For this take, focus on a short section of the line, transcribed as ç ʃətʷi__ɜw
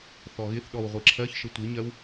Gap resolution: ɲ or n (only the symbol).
ɲ